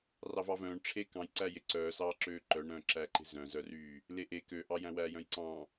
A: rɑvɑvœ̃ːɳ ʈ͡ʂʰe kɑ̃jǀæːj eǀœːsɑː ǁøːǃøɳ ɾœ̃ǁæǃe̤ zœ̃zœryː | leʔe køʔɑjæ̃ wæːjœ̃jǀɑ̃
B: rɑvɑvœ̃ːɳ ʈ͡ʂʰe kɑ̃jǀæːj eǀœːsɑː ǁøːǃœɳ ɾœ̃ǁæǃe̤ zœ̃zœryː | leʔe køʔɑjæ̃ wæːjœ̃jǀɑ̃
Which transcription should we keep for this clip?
B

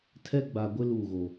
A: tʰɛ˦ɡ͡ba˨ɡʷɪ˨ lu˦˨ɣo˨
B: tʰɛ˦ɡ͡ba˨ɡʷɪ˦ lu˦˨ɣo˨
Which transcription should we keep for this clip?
B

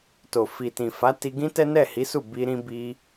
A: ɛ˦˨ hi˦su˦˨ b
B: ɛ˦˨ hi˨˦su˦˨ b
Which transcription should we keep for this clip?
B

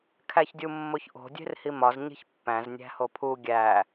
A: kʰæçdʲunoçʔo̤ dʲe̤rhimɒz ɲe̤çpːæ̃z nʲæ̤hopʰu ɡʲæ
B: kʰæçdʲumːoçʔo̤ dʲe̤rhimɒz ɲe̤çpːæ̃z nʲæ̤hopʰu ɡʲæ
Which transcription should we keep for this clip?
B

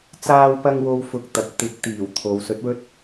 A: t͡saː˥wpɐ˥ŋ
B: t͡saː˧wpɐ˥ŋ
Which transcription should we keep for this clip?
A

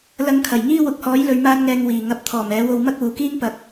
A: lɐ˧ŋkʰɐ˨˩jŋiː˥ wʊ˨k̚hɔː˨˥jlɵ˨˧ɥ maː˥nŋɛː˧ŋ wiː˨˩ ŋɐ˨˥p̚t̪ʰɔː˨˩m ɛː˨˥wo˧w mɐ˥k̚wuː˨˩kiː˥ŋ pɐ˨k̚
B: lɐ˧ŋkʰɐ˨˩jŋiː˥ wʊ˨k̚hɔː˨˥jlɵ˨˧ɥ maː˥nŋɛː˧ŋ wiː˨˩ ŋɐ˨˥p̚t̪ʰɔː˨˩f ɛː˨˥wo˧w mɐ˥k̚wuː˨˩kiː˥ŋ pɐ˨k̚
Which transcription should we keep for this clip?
A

